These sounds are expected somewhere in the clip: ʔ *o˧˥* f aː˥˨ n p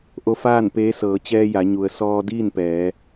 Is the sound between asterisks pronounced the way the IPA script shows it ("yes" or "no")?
yes